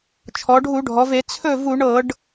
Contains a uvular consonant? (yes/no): no